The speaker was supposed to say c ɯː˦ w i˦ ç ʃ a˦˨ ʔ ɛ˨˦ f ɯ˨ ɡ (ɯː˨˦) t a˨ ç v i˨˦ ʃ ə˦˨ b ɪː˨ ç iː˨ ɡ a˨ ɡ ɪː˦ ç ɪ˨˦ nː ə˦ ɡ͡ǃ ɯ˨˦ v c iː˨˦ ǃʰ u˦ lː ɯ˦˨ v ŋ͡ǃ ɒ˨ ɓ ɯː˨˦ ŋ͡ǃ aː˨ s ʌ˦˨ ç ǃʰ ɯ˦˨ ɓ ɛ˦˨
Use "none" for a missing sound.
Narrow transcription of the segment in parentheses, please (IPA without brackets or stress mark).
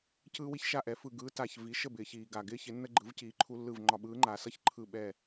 ɯː˨˦